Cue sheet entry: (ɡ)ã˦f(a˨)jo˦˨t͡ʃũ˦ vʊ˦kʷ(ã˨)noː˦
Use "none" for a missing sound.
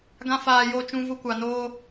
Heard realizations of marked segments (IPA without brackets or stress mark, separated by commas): ɡ, aː˨, a˨